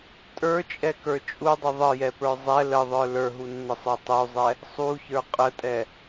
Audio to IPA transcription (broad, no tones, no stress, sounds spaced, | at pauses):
tʼ ə˞ t͡ʃʼ ɛ k ə˞ t͡ʃʼ u dˤ ə ðˤ ə j ɛ p ə˞ zˤ ɛ l ə ðˤ ə˞ l ə˞ ɦ u nː ə sˤ ə˞ tˤ u zˤ ɛ | sˤ u ç ə˞ qʼ ə tʼ ɛ